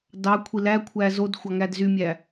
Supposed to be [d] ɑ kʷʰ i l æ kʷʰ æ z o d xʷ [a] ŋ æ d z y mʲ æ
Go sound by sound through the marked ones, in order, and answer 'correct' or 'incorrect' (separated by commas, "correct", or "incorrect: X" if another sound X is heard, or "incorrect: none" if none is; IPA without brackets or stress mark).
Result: correct, incorrect: ɑ